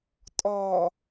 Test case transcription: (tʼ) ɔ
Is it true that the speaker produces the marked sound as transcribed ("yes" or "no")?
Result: yes